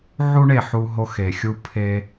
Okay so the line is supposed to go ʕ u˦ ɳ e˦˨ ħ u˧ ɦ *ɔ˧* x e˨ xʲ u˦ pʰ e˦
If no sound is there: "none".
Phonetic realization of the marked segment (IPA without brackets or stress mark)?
o˧